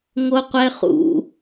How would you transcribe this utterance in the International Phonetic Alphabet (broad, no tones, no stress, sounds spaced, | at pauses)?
ŋ o qʷ ɛ χ ṵ